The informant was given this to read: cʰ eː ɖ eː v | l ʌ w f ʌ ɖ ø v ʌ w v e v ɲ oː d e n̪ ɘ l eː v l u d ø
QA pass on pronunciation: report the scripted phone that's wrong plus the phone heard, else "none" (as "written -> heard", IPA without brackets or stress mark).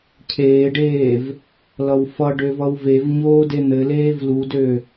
none